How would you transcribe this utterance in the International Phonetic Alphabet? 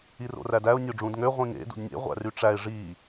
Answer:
i r o̰ r æ d æ ʊ̯ nʲ o ɖ͡ʐ ũ d ŋ ø ʁʷ ĩ ŋ ḛ d ṵ d nʲ ḛ ʁʷ æ̰ r y ʈ͡ʂ æ ɪ̯ ʐ i

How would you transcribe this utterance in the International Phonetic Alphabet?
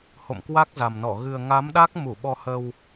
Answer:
h o̰˧˨ m k w a˦˥ k̚ z a˨˩ m n ɔ˧˩ ɣ ɨ˨˩ ə̯ ŋ a˨˦ m ɗ a˦˥ k̚ m u˧˩ ɓ ɔ˧ h ə˧ w

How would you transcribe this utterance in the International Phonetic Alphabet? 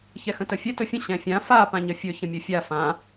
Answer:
ç ɛ x ə̃ t ə fʲ ɛ t ɵ fʲ ə̃ ɕ ɛ̃ fʲ ã f a p ã ɲ ə fʲ ɵ ç ə̃ mʲ ɵ fʲ a f ã

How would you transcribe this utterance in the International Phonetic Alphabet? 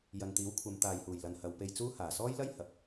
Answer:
j ɐ˨ n t̪ iː˨˥ w kʷʰ ɐ˨˧ m t̪ aː˨ j h uː˨˩ j l ɐ˨ n h ɐ˨˧ w p e˧ j t͡s uː˥ h aː˨˩ s ɔː˥ j l ɐ˥ j h ɐ˨ p̚

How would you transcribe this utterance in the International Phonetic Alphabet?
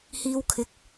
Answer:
h iː˧ w kʰ ɪ˨˥ k̚

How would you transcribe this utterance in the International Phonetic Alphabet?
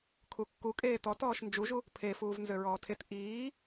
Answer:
kʰ u kː u kʼ eː t ɔ t ɔː ʃ n d͡ʒ u ʒ u | pʰ e f uː v n z ø ɹ ɔː tʰ e t ʔ iː

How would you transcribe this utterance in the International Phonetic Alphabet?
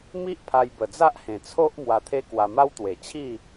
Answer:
m i˦ ʔ pʰ a˧ j b ə˨˩ d͡z a˦ ʔ h ẽ˨˩ t͡sʰ o˦ ʔ m w a˧ t̪ʰ e˦ k w a˧ m a˦ w t̪ w e˨˩ t͡ɕʰ i˥˧

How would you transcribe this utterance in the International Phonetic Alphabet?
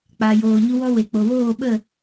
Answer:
k͡p aː˨ j oː˨ ɲ u˧ w ɔ˧ w e˨ k͡p o˨ w oː˦˨ ɓ ə˦˨

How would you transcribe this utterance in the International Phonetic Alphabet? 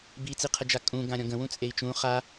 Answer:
b i t͡s i qʰ ə d͡ʒ a kʼ ũ ɡ ã ɾʲ ɔ̃ ɡ ə̃ w ũ t͡sʼ e i̯ t͡ʃ ũ χ a

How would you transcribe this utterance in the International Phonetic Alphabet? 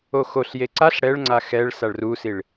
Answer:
o x o ɬ j e ǀ a ɬ ɽ ɛ ɭ ŋ͡ǀ a x ɛ ɭ s a ɭ r u s i ɭ

